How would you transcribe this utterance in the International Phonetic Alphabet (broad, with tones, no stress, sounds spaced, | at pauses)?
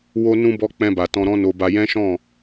w o˧ n ũ˧ b ɔ˧ k͡p ɛ̃˧ b a˨ t ɔ̃˧ ɾ ɔ̃˦ n o˧ b a˧ j ɛ̃˦ ʃ ɔ̃˦˨